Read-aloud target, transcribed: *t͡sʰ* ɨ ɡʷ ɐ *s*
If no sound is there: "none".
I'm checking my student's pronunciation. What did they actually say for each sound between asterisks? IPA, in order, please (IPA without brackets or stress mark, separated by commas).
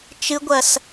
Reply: t͡ʃ, s